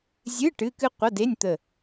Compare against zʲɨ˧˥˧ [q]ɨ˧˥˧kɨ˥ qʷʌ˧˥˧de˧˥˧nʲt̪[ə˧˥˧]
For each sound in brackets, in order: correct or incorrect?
incorrect: ʈ, incorrect: ə˧˩

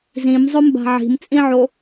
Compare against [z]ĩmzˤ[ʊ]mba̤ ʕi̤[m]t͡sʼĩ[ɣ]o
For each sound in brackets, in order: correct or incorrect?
correct, correct, correct, incorrect: ʕ

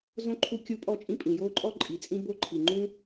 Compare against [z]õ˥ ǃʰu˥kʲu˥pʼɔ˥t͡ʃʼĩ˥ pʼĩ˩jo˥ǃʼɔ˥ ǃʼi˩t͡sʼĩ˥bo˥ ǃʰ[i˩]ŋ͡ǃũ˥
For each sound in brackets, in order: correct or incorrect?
correct, correct

